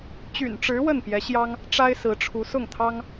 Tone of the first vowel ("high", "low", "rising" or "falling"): low